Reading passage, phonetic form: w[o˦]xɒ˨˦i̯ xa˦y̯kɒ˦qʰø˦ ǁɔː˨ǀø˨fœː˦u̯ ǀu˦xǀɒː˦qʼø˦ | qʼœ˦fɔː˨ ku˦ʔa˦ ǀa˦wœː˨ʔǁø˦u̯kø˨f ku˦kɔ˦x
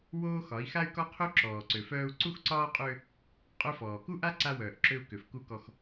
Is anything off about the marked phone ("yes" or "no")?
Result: yes